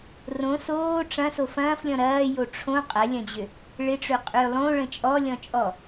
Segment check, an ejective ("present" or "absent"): present